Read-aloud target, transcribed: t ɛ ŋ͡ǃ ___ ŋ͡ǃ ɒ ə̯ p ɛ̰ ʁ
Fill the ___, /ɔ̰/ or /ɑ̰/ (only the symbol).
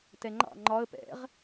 ɑ̰